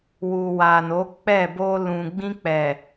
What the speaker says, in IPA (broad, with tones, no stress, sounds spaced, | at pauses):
w u˨ w a˨ n o˨˦ k͡p ɛ˦˨ b o˧ l ũ˨ ɡ͡b ĩ˧ k͡p ɛ˨